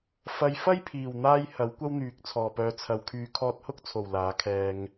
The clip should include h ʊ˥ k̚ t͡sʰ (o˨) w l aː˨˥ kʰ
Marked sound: incorrect: o˨˩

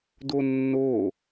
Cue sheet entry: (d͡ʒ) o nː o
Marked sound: incorrect: d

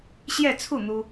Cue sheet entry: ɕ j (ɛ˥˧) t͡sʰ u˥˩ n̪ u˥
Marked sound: correct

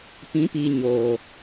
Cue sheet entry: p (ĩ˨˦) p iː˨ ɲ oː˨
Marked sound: correct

